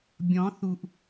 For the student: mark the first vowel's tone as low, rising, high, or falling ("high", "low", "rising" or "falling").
rising